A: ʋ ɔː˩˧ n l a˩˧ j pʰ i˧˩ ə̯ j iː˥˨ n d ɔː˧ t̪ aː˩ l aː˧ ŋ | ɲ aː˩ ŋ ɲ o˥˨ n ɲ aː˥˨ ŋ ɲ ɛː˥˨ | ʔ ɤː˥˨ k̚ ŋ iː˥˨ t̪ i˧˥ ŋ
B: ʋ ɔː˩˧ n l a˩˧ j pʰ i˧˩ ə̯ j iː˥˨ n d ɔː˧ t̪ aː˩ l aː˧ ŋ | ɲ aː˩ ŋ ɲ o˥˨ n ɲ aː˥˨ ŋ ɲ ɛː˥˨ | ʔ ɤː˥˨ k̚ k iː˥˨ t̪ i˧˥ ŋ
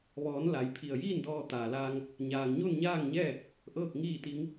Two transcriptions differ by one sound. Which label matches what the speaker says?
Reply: A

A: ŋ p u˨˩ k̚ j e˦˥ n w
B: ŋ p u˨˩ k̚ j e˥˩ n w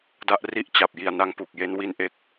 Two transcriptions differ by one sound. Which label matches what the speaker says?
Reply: A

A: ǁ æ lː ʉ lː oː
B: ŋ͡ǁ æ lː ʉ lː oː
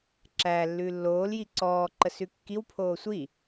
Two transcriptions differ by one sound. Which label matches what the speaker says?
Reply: A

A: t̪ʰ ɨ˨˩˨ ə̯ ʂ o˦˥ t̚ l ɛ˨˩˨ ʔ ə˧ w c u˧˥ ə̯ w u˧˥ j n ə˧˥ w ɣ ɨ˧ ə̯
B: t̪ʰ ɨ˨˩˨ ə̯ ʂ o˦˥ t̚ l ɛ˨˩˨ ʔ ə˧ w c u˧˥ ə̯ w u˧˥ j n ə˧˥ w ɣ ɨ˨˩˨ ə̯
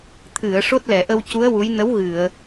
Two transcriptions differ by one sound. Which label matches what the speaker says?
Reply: B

